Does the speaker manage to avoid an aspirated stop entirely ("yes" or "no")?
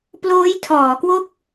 no